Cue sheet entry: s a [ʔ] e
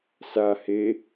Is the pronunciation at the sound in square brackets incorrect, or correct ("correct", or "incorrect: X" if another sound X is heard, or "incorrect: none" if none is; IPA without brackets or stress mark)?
incorrect: h